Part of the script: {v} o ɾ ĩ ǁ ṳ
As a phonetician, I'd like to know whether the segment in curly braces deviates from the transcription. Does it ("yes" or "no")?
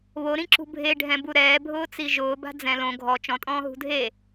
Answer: yes